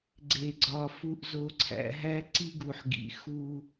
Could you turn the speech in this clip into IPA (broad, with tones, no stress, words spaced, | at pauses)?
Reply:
ɡ͡ǀe˨ɡ͡ǀɒ˨ fu˨ʔzo˨ǀʰæ̰˨ɦæ˦ ǀi˦ɡu˨ħ ɡḭ˨xu˦